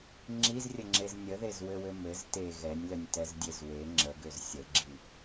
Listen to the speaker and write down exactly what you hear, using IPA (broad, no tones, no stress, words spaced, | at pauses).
ŋ͡ǁizrʲəŋ͡ǁez nʲəðezwɘwɘ mɘz te ɣɛnʲlənʲtɛzdʲez we ŋ͡ǁəɡøz sʲəɡ͡ǁi